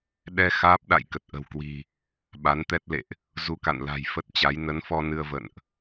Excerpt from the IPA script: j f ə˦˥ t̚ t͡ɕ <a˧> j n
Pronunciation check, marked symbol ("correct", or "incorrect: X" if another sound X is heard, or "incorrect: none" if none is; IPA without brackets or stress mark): incorrect: a˨˦